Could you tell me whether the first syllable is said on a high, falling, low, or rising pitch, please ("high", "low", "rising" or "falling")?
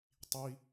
high